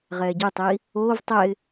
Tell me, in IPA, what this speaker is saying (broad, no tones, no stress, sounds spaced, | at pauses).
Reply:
ʁ ɛː ɟ ɛ tˤ iː | oː v tˤ ɛ ɪ̯